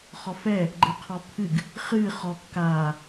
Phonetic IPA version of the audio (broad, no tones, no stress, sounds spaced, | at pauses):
χ ɔ f ɛ | ɡ͡ǃ əː qʰ ɔ pʰ ɨ ɡ | χ ɨː χ ɔ kː aː